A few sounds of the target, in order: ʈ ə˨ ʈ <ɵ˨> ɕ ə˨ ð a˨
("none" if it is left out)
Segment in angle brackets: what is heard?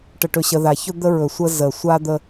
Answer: ɵ˨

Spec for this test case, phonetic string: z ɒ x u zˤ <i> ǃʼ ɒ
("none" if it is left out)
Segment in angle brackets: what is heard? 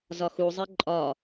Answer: i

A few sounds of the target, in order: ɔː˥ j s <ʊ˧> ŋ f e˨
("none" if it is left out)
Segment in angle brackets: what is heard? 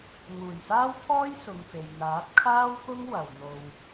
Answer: ʊ˨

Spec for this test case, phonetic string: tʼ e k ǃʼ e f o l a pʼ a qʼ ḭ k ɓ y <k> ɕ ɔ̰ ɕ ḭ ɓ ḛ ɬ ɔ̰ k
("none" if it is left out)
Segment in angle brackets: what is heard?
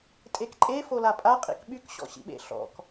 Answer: k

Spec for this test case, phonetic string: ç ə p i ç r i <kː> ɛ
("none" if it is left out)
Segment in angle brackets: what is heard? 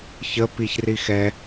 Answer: x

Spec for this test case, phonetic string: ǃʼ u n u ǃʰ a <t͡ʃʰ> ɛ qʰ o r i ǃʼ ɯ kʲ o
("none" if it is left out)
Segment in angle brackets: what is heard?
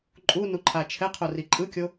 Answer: t͡ʃʰ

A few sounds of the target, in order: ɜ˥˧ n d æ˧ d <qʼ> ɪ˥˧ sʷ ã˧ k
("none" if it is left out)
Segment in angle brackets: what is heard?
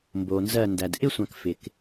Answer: ʔ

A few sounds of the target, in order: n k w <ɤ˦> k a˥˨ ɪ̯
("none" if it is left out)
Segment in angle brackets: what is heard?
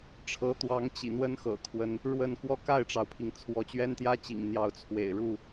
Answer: ɔ˦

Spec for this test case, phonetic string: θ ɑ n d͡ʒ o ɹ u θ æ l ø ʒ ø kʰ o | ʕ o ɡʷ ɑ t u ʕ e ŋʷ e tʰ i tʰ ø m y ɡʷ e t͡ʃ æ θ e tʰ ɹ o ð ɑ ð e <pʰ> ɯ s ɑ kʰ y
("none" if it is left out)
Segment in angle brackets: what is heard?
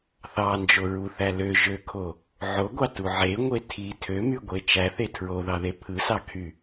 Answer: pʰ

